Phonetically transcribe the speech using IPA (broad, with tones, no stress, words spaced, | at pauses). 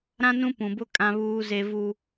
ɾã˦nũ˦ pũ˨bʊ˦ kʼã˦βuː˦ze˦ vu˦